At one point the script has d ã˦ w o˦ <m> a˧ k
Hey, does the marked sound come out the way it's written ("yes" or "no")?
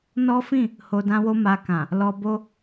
yes